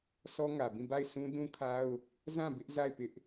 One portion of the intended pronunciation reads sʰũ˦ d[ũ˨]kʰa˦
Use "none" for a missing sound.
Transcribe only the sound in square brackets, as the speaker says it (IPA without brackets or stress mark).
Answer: ũ˦